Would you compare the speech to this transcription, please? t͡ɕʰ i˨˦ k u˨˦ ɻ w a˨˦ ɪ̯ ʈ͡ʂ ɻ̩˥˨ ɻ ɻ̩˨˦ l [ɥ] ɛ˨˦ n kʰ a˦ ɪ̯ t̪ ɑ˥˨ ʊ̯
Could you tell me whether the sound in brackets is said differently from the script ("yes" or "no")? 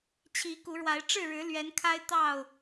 no